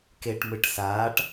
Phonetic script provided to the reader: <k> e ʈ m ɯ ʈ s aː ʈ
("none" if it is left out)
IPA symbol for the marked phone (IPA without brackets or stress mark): k